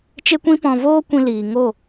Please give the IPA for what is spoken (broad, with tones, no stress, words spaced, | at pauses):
t͡ʃe˦kʷĩ˦pɔ̃˧ voː˦kʷĩ˧ liː˨ŋo˦˨